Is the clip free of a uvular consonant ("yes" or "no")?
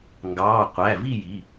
no